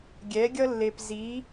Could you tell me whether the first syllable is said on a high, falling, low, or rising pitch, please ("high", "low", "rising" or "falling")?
rising